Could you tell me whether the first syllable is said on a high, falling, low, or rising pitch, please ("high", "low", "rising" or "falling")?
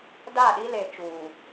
falling